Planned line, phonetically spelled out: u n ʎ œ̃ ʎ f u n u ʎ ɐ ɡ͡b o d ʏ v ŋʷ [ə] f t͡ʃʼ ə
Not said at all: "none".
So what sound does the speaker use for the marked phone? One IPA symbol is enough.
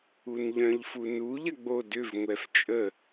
ɛ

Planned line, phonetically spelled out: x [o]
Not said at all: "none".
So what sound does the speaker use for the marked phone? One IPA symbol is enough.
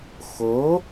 o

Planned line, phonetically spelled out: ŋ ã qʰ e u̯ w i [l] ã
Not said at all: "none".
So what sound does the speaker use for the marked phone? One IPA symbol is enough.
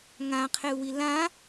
l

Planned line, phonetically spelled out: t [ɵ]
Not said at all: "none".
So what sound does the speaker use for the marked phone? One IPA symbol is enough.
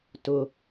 ʊ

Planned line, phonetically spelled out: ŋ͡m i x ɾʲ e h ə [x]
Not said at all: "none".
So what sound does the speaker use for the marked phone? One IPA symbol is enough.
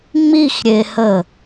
none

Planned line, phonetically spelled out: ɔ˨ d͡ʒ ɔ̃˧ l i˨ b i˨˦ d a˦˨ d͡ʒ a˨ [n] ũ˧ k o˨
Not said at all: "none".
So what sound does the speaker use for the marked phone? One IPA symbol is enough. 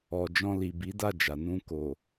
n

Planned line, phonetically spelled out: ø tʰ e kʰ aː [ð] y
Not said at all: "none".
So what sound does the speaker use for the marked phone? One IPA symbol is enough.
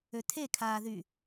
ð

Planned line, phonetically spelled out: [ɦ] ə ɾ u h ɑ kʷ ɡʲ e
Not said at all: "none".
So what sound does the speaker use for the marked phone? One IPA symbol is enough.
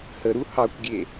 h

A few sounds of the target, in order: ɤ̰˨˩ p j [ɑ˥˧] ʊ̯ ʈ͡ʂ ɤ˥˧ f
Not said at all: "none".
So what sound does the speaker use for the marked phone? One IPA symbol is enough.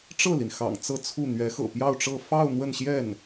ɑ˥˧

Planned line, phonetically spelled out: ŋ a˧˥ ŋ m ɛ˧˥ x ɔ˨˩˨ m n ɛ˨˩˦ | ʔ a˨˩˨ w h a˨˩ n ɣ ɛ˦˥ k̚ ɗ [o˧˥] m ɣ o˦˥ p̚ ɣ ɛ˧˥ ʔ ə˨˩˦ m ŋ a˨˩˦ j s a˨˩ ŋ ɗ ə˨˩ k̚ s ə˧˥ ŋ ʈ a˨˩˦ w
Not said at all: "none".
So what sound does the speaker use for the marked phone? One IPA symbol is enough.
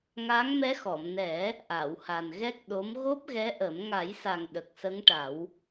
o˧˥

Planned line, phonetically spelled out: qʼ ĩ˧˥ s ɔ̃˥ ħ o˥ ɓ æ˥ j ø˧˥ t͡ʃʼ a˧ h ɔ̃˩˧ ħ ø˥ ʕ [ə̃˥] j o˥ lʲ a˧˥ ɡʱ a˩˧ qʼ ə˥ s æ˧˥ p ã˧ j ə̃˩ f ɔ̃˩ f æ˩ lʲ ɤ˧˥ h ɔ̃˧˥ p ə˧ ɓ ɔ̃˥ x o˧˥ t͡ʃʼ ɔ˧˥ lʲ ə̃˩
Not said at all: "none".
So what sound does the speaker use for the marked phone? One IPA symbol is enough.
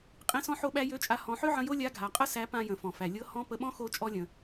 ə̃˧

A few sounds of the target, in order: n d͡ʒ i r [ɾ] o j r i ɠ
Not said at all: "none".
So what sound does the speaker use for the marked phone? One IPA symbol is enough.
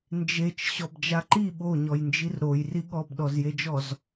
ɾ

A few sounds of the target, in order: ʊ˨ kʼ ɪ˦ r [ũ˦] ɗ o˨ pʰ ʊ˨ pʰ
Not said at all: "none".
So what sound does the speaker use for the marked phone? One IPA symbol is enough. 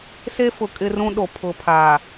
ũ˦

